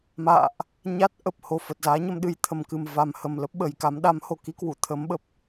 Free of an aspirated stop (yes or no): no